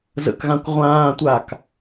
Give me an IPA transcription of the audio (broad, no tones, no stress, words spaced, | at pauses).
zə̰kɣãkʷ ʁʷãːtʷak